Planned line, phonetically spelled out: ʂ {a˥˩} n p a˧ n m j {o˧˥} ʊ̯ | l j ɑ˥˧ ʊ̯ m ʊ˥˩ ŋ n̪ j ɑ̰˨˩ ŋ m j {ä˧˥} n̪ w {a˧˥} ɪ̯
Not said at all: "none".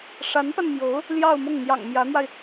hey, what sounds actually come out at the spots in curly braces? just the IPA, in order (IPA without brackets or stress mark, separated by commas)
a˧˥, o˧˥, ä˧˥, a˧